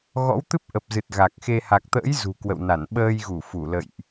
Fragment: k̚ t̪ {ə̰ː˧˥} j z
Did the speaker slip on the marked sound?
no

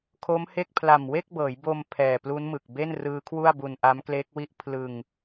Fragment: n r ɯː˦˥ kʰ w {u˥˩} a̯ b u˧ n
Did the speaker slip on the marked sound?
no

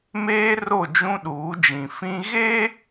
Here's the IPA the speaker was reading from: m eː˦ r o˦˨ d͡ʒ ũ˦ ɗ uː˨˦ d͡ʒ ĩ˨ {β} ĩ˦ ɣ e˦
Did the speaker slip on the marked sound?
yes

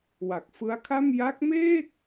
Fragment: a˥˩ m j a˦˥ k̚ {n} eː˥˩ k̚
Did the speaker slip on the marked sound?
yes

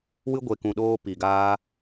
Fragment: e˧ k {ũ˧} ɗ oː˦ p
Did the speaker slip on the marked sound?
no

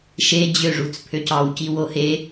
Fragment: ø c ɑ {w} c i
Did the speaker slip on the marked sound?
no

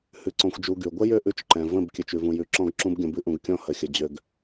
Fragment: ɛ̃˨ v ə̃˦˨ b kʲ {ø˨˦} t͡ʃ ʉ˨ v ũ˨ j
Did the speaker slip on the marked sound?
yes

